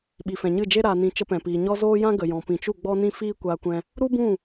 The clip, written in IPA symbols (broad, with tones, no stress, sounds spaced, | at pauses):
ɓ i˨ f ɛ̃˨ ɲ ɨ˦˨ d͡ʒ e˦ ɾ a˨ n ĩ˨ t͡ʃ ə˧ p ɛ̃˨ p iː˨ ɲ ɔ˦ z oː˦ j ã˦ ɡ ə˨ j ɔ̃˨ p ĩ˨ t͡ʃ u˦˨ ɡ͡b ɔ˦ n ĩ˦ f iː˦ kʷ aː˧ kʷ ɛ̃˧ | ɾ u˦ b ũ˦˨